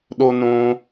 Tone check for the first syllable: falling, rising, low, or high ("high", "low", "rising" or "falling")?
high